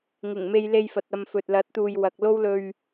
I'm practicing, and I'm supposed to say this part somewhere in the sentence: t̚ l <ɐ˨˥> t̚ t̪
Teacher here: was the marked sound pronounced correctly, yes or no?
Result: yes